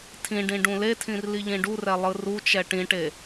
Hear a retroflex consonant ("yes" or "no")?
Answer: yes